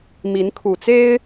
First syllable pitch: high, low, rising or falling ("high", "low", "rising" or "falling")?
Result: rising